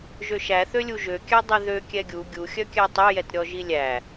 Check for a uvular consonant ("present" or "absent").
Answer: absent